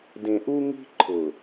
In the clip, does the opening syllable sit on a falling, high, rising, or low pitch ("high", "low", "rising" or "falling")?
low